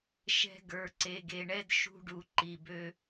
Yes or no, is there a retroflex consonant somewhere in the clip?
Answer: yes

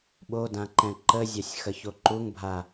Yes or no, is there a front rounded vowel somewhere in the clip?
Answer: no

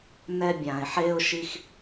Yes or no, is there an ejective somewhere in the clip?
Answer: no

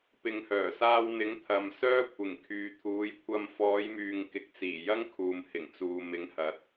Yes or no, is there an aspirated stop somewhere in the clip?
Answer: yes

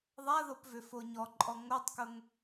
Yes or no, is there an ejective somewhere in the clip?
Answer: yes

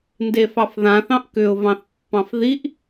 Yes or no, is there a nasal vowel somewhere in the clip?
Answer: yes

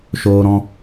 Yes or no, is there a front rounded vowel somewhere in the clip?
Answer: no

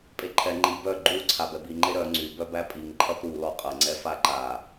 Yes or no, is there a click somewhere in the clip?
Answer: yes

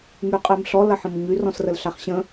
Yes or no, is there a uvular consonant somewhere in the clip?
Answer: yes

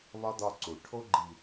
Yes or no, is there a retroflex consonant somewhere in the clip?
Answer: yes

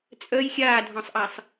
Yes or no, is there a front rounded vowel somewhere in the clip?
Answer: yes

